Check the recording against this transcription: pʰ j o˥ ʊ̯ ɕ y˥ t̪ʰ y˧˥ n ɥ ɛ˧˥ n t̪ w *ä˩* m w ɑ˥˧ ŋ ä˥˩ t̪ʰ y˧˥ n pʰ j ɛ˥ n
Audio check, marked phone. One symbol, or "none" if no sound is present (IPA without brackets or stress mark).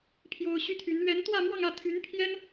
ä˥˧